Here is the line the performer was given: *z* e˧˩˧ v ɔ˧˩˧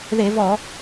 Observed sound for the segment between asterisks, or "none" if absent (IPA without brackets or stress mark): ð